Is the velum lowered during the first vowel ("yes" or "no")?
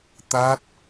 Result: no